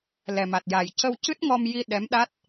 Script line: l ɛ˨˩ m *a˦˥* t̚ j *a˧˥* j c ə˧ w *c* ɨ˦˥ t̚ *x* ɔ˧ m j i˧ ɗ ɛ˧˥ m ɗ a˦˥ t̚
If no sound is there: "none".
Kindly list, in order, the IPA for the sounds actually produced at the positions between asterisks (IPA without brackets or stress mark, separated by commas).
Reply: a˨˩, a˨˩, c, ŋ